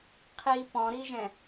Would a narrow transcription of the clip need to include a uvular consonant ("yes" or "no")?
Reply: yes